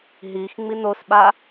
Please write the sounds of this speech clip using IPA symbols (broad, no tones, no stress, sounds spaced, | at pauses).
ɦ i x ŋ͡m i n o s ɓ a